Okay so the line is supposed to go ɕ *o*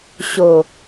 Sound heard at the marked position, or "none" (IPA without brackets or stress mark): o